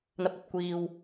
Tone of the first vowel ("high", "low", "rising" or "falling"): low